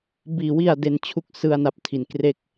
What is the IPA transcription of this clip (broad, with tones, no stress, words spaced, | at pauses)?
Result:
biː˩˦wi˨˩a̯ de˧nt͡ɕʰu˥˩k̚ sɯ˧a̯na˨˩p̚ tʰi˩˦nkre˥˩k̚